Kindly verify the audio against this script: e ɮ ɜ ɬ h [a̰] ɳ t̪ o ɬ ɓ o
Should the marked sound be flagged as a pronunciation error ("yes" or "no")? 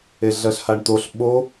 yes